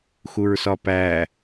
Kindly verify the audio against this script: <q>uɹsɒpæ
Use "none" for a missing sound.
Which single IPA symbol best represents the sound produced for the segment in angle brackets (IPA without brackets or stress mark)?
x